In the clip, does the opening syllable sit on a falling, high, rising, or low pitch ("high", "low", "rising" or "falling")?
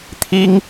high